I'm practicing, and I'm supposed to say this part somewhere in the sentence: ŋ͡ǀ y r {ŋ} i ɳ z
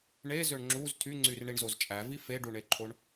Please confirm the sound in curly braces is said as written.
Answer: no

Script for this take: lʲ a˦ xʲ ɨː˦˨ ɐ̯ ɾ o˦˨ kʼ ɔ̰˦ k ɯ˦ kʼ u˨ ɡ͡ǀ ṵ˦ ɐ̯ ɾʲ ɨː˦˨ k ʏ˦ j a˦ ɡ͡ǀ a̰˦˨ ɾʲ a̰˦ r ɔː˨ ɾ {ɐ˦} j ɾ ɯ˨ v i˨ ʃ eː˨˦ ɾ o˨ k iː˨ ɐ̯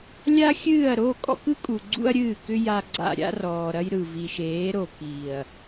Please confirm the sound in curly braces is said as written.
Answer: yes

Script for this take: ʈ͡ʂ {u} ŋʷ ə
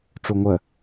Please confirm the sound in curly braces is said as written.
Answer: yes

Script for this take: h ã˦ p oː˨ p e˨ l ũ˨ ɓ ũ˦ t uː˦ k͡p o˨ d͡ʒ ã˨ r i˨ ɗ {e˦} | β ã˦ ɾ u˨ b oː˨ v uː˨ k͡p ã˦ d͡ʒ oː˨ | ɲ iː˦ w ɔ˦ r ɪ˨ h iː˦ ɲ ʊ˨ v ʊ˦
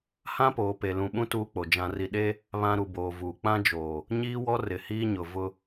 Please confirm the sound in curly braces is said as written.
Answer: yes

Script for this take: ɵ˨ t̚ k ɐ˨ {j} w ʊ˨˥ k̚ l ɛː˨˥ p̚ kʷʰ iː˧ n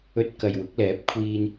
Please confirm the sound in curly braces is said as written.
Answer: yes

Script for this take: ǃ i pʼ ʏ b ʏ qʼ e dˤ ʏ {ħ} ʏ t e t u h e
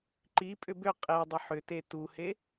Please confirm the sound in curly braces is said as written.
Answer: yes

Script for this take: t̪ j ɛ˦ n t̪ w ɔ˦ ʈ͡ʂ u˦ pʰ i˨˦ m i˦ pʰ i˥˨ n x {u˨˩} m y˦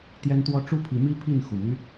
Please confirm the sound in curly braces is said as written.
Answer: yes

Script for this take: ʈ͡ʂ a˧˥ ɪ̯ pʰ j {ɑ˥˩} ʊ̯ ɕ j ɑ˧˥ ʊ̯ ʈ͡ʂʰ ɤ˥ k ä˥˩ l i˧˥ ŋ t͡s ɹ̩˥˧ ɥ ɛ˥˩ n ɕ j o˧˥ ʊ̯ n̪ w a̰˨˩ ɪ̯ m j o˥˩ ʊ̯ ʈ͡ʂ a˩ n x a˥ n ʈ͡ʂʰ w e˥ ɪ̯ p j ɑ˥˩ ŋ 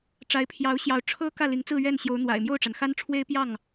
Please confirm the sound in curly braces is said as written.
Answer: no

